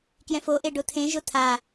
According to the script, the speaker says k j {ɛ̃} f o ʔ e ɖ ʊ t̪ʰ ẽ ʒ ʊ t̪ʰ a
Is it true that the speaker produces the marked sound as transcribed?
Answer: yes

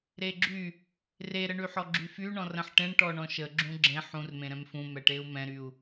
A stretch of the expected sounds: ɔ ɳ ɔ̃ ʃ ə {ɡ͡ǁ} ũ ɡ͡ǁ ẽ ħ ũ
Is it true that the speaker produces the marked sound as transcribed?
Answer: yes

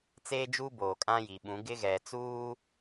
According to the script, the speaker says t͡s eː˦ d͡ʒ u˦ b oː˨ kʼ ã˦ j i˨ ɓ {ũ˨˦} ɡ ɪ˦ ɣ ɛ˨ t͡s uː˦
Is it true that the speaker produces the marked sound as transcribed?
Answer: yes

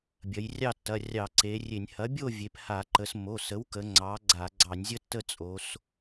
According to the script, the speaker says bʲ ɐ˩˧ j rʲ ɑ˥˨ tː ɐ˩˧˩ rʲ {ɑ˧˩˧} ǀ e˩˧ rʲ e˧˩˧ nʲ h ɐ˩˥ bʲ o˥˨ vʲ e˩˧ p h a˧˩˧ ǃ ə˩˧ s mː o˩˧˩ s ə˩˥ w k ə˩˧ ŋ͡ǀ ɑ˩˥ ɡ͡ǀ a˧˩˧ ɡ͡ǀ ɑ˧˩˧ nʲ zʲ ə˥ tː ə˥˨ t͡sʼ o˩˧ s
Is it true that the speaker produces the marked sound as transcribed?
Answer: yes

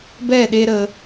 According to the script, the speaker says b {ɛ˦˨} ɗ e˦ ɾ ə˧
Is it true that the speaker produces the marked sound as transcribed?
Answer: yes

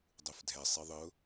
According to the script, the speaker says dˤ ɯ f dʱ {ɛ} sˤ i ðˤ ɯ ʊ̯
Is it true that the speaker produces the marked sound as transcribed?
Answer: yes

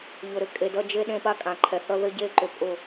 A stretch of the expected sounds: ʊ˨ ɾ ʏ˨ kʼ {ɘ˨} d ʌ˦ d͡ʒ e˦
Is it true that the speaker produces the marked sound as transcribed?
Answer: no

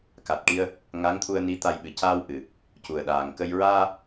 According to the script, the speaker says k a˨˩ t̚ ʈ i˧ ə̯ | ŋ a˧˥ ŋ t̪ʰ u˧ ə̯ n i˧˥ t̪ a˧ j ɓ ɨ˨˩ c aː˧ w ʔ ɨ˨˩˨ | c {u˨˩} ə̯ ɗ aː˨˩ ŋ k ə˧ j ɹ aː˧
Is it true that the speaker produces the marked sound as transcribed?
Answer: yes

